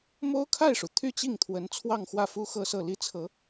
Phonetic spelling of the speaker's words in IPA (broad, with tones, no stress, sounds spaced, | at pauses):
m o˥ ʊ̯ kʰ a˥˩ ɪ̯ ʂ u˩ t̪ʰ y˥˧ t͡ɕ i˥˩ ŋ t̪ʰ w ə˧˥ n t͡sʰ w ɑ˥˧ ŋ x w ä˥˩ f u˥ x ɤ˥˧ s ɤ˥˩ l i˥ t͡sʰ ɤ˧˥